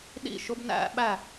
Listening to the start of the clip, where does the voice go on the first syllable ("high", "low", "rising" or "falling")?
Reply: falling